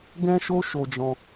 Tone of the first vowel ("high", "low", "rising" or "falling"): high